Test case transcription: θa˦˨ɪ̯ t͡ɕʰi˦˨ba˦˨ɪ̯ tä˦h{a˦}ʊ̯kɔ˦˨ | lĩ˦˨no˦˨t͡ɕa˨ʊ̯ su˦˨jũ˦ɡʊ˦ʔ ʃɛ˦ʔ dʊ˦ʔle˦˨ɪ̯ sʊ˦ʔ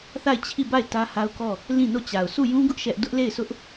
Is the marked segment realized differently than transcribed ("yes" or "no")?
no